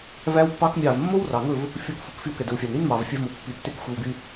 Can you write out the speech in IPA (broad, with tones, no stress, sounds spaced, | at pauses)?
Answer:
v æ˦ w pː ɑ˦ k mʲ ɑ˦˨ v mː o˦ w r ɑ˨ ŋ ɵ˦˨ v | fʲ o˧ k f u˨ k f y˧ w k ɛ˨ d ɵ˨ w fʲ ɑ˨ n ɾ i˦ n m ɑ˨ v fʲ æ˧ v m o˨ pː i˨ tː e˧ k xʷ æ˧ w ɡ y˧